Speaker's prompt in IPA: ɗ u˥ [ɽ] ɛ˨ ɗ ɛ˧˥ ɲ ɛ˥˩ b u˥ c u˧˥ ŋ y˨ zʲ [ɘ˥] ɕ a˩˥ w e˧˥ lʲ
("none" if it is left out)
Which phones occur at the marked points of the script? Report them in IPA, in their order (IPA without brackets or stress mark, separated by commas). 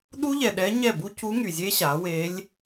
ʎ, e˥